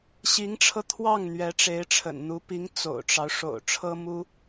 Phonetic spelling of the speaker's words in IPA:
ɕ i˧˥ ŋ ʈ͡ʂʰ ɤ˧ t̪ʰ w ɑ˥˩ ŋ n̪ ɥ ɛ˧˥ ʈ͡ʂ e˧˥ ɪ̯ ʈ͡ʂʰ ə̰˨˩ n n̪ u˧˥ p i˧˥ ŋ t͡s o̰˨˩ ʊ̯ ʈ͡ʂ ɑ˦ ʊ̯ ʂ o̰˨˩ ʊ̯ ʈ͡ʂʰ ɤ˥ m u˥

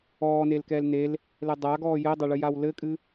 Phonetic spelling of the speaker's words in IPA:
ɔː n e l k ɛː l n e l | l ɛ dˤ a ɡ ɔː j ɘ dˤ a ɭ ɨ j a w l ɘ kʼ ɨ

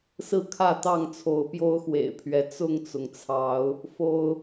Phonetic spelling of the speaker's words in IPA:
s ɹ̩˦ kʰ ä˥˨ t̪ ɑ˥˨ ŋ t͡sʰ o˨˦ ʊ̯ p j o˦ ʊ̯ x w ḛ˨˩ ɪ̯ pʰ ɥ ɛ˨˦ t͡s ʊ˥˨ ŋ t͡s ʊ˩ ŋ t͡sʰ ɑ˨˦ ʊ̯ | f o˦ ʊ̯

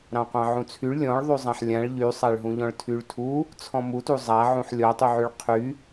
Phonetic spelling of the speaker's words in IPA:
ɾ ɑ̃ qʷ ɑ̃ ʕ ũ t͡sʰ y ɭ lʲ ɔ̃ ɭ ðˤ y zˤ ã ħ lʲ ã ɭ ʎ y sˤ a ɭ ɦ ũ ʎ ɔ̃ ɭ tʰ y ɭ tʰ u | t͡sʰ ɔ̃ m u t u zˤ a ʕ ũ ħ lʲ ɔ tˤ y ʕ y ɭ qʰ y

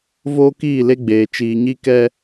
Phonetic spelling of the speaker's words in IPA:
v oː˦ k iː˦˨ l e˦ ɡ͡b eː˨ t͡ʃ iː˨ ɲ i˦ k ɛ˦

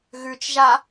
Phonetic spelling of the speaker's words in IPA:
ɣ ʉ t͡ʃ ʒ a

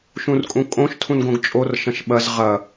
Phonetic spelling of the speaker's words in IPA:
ʃ ũ r kʼ ũ kʼ õ ʃ tʰ ũ n ɡ õ ɡ t͡ʃʼ o r ʃ ɐ̃ ʃ ɓ ɐ z ʁ ɐ

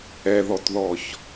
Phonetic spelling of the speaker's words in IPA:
ɛ ð ɔ t ð ɔ ç

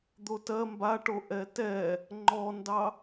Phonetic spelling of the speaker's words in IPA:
d̪ o t ɜ m b a ʈ o ʔ ɛ t ɛ | ŋ͡ǃ ɔ n d ɑ

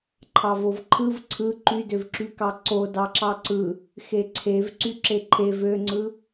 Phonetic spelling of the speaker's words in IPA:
ǃʰ ɑ v o v ǃʰ ɯ v ǀʰ ɯ ǃ y d ø v ǁ y k ɑ ǀ o d ɑ ǁ ɑ ǀ ɯ | x e ǀʰ e v ǀ y ǁ e ǃʰ e v ø ŋ͡ǀ ɯ

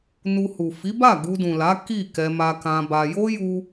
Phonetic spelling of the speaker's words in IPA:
n u˧ h u˨ f i˨˦ b a˦˨ ɡ u˧ d ũ˨ l a˨˦ k i˦˨ k ɛ˧ m a˧ k ã˧ b a˧ j o˦ j u˧

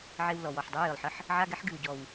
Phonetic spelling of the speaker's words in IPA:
ʕ e˧ w l ɔ˨˩ w ɔ˨˩ ħ dˤ ɨ˧˥ j ɨ˨˩ lˠ ħ ə˧˥˧ ħ | ʕ a˧˥˧ ɡ ɛ˧˥ ħ ɡ ɨ˨˩ w ɟ ɔ˨˩ w

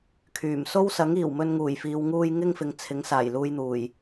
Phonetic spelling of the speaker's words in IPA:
kʰ yː˨˩ m s o˥ w s ɐ˨˥ ŋ iː˨˩ w m ɵ˧ n ŋ uː˨˩ j f iː˨ w ŋ uː˧ j ŋ ɪ˥ ŋ f ɪ˨˧ ŋ t͡sʰ ɪ˨˥ ŋ s aː˨˩ j l uː˧ j n̪ uː˨˩ j

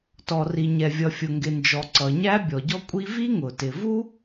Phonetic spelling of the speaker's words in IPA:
t ɔ˩ r i˩ ɲ ɛ˩ vʲ ʌ˩ fʲ ʊ˩ ŋ ɡ ɪ˩ n d͡ʒ ɔ˩ ǀ ʌ˩ ɲ æ˥ bʲ ɔ˩ ɟ ɔ˥ kʷʼ i˥ v i˥ ŋ ʊ˩ t ɪ˩ v u˥

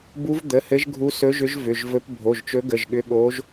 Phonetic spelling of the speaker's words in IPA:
b u˧˥ v d̪ ə˩˧˩ h ɘ˧˥ ʒ ɡʱ u˧˥ s ɵ˧˥ ʒ ʏ˧˥ ʒ v ʏ˩˧˩ ʒ v ɵ˧˥ p bʱ o˩˧˩ ʒ t͡ʃ ɵ˧˥ ɡ ə˩˧˩ ʒ ɠ ʏ˧˥ ɠ o˧˥ ʒ

